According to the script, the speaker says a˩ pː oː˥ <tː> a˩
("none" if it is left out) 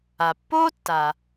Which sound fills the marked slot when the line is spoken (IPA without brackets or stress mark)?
tː